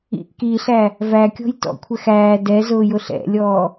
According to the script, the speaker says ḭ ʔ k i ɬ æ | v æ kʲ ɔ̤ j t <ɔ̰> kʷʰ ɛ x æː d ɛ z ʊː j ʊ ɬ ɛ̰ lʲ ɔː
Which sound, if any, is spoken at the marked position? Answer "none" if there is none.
ɔ̰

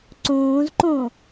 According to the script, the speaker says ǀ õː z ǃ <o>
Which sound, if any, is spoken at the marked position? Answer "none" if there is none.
õ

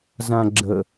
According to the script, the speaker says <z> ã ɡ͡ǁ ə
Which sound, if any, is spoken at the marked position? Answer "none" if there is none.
z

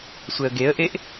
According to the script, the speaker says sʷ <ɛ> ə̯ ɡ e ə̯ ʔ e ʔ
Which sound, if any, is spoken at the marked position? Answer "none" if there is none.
ɛ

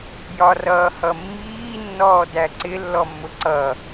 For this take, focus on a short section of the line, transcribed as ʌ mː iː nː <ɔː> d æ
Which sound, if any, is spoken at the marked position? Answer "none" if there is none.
ɔː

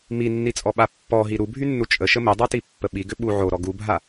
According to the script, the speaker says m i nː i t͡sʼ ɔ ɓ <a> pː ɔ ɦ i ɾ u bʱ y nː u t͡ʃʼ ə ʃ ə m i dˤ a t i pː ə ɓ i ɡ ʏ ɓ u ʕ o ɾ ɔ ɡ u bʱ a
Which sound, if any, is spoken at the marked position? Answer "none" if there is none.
a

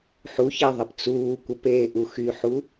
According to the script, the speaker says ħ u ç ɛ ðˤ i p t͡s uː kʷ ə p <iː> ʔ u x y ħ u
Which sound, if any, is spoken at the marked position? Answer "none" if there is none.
eː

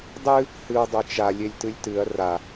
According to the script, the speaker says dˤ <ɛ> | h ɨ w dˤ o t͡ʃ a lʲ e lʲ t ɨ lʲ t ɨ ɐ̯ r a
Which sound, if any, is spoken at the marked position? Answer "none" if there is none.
ɨ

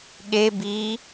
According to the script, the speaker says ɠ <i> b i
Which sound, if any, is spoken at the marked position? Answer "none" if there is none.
e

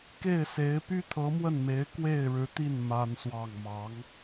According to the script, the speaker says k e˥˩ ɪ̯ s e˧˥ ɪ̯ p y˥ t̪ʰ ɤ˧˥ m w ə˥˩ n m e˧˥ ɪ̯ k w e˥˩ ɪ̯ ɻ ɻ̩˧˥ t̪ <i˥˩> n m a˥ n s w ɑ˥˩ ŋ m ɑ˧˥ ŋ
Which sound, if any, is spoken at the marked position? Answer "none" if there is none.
i˥˩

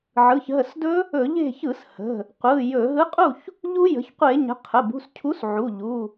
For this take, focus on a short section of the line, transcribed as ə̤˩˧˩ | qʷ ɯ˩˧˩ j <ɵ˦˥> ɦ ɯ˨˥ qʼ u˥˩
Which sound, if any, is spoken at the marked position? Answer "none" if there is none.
ɵ˧˩˧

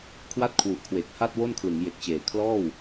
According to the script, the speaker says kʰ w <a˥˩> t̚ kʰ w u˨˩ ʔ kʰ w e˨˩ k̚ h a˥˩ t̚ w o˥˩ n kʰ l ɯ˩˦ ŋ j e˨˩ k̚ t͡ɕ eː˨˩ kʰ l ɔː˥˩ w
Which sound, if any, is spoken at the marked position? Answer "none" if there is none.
a˥˩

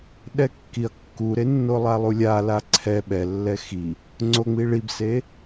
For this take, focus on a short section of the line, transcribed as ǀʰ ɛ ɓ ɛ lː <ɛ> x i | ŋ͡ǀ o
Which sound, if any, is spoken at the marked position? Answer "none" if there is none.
ɛ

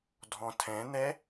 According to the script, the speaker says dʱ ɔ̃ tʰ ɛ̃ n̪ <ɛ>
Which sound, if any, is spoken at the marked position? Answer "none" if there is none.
ɛ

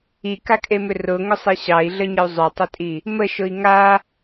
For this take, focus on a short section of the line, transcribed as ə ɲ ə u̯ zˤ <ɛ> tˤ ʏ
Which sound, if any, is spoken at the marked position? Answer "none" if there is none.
ʏ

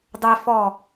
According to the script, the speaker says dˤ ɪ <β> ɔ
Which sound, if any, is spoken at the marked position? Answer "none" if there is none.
f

